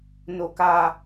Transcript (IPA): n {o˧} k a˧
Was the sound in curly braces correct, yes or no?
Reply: yes